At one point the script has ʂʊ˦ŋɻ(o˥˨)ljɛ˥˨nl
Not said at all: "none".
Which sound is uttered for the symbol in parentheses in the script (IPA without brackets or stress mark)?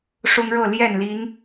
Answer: ɤ˥˨